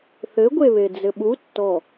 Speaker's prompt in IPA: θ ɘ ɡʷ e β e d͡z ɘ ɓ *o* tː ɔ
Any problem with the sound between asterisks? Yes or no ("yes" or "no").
yes